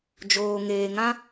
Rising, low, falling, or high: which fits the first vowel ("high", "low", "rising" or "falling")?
low